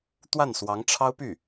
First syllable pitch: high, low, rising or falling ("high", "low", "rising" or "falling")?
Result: falling